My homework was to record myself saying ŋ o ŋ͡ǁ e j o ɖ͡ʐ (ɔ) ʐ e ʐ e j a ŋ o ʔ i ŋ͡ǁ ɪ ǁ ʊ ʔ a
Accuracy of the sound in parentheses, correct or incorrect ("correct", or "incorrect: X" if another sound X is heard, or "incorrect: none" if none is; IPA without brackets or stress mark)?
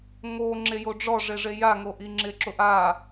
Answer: correct